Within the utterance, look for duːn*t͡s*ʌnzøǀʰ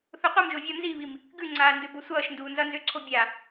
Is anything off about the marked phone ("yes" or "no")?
yes